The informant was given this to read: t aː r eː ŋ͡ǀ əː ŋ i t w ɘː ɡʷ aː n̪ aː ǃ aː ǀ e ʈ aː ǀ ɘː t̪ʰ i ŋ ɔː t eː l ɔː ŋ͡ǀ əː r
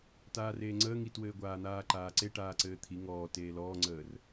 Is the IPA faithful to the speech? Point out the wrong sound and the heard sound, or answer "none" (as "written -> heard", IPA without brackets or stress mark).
none